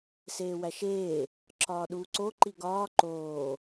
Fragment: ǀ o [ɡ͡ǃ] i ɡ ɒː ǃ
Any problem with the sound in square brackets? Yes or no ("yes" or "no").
yes